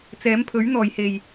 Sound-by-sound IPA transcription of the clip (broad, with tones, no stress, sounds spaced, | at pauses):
t͡s ɛː˨˥ m pʰ ɵ˨˥ ɥ n̪ ɔː˨˩ j h e˨˩ j